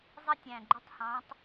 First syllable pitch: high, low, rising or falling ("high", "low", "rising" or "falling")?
high